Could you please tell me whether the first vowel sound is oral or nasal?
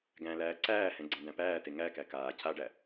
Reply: nasal